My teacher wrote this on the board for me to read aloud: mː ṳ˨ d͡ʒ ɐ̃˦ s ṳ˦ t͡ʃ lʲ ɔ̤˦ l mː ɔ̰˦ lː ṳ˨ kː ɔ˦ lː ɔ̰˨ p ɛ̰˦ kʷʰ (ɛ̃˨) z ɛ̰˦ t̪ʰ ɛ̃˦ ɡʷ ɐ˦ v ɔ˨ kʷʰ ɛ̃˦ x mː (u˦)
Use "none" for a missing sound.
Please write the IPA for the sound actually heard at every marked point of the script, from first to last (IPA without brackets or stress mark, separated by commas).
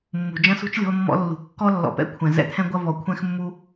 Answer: ɛ̃˨, u˦